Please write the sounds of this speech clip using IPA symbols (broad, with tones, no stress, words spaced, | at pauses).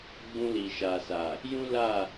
ɡ͡bũ˧li˨ʃa˨sa˨ | jũ˦la˦˨